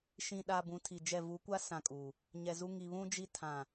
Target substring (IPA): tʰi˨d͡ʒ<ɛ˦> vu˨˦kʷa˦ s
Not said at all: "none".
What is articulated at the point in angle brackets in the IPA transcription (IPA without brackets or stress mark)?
ɛ˦˨